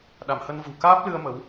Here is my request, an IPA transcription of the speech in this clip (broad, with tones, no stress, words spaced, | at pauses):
ɗa˧˩mhə˧nvṳ˨˩ kaː˦˥p̚lɨ˧ə̯ mə˨˦w